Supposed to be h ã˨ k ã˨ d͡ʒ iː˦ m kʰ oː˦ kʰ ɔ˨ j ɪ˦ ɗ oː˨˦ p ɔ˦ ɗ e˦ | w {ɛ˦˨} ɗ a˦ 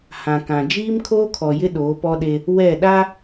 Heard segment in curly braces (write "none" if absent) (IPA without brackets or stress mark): ɛ˦˨